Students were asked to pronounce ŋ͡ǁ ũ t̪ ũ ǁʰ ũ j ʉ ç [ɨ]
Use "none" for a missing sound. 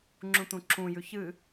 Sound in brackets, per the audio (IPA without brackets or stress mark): ɨ